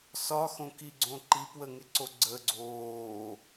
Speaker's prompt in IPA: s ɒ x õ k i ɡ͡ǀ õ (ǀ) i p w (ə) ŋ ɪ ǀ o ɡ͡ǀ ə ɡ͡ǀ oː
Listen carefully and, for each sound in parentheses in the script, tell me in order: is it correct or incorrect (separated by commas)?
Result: incorrect, correct